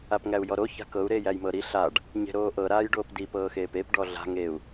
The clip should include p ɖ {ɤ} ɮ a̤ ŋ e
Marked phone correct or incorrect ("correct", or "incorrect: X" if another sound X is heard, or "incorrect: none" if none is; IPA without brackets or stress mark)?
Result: incorrect: ɔ